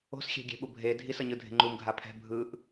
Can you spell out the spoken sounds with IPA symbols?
o̤ s xʲ ɛ̤ ɡʲ ɛ̤ ɓ u bʱ e dʱ i s ʌ ɲ ɯ dʱ e̤ ŋ͡ǃ u m ɡʱ a pʰ ɛ̤ bʱ ɯ ʔ

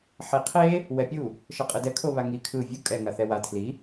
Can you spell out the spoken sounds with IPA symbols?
ħ i qʰ e | w ɛ pʲ u | ʃ ʌ qʼ ɯ d ɛ kʰ o β a ŋ i kʰ ɯ vʲ u kʼ ɛ ŋ a θ ɛ w a tʰ l i

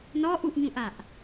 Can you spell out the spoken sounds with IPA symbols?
n ɔ ʔ u ʔ ɲ ũ ʔ a ʔ

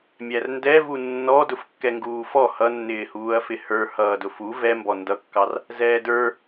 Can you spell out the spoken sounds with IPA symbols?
mʲ æ r n d ɛ v u nː ɔ d ʊ f kː ɛ ŋ ɡ uː f ɔ h ʌ nː ɪː h uː ɐ̯ f ɪ h ə˞ h ʌː d ʊ f u v ɛ m b ɔ n d ʌ kː ɑ r | z ɛː d ə˞

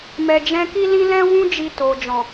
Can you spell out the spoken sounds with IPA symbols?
m ɛ˨ d͡ʒ ɛ̃˧ k i˦ l ĩ˦ l ɛ̃˦ w ũ˦ d͡ʒ i˧ t o˨ d͡ʒ ɔ̃˨

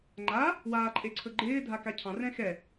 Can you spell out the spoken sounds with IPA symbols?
ŋ͡ǃ a | w aː ǃʼ e ǀʰ ɵ ɡ͡ǃ ɪː dʱ a k a cʰ ɑ̃ r ɛ̃ x ɛ

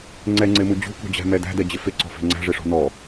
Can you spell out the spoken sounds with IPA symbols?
ŋ͡ǀ ɛ ŋ͡ǀ ɪ m u d͡ʑ ṳ k ṳ d͡ʑ æ̤ m ɛ d æ̤ d ɛ d͡ʑ ɪ f ɪ ǀ ɔ̤ f ɛ̤ ŋ͡ǀ æ̤ ʐ ɪ ʂ ɔ̤ n ɔ

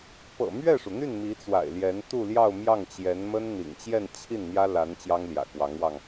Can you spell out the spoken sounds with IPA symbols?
p ɤ̰˨˩ m ɥ ɛ˥˩ ʂ u˩ n̪ y˥˩ n m i˧˥ t͡s w a̰˨˩ ɪ̯ l j ɛ˧˥ n t̪ u˥˧ l j ɑ˥˧ ʊ̯ m j ɑ˥˩ ŋ t͡ɕ j ɛ˧˥ n m ə˥ n n̪ ḭ˨˩ ŋ t͡ɕ j ɛ˥˧ n t͡ɕʰ i˥˩ n n̪ j ä˥ l a˧˥ n t͡ɕ j ɑ˥ ŋ l j ä̰˨˩ k w ɑ˧˥ ŋ w ɑ˧ ŋ

